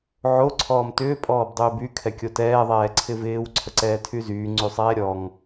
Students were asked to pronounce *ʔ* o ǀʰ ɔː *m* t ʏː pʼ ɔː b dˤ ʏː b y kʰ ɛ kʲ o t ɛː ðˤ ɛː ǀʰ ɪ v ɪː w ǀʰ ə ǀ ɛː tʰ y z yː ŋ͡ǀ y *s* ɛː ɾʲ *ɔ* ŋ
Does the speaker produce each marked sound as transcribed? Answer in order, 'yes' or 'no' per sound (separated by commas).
no, yes, no, yes